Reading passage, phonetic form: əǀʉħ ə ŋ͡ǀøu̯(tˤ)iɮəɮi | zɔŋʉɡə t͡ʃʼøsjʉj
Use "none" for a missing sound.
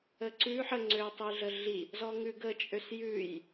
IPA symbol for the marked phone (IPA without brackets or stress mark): tˤ